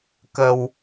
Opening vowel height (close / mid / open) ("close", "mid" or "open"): mid